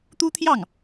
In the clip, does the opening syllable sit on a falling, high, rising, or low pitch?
high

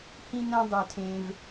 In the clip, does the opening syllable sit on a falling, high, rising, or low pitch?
high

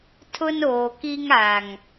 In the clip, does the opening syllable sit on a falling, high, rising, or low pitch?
high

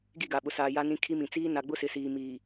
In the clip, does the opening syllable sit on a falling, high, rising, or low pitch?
falling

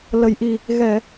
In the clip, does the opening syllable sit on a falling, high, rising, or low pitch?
low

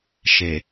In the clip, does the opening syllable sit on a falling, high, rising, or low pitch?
low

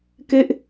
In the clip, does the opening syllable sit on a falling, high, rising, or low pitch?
falling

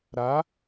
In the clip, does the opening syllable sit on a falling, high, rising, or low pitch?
rising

